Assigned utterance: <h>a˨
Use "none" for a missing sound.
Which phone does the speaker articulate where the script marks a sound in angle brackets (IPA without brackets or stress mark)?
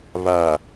β